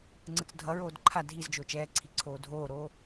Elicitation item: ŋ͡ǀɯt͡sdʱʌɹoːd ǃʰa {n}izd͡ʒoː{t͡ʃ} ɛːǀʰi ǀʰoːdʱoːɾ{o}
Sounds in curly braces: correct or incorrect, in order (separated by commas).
incorrect, correct, incorrect